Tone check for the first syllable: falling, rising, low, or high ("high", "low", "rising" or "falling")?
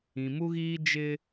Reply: low